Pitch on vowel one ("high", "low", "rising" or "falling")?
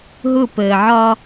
falling